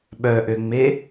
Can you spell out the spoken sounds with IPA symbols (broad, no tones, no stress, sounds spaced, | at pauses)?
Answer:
ɓ œ ʔ ø ŋ͡m e